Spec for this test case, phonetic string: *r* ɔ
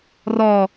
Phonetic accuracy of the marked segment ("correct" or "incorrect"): correct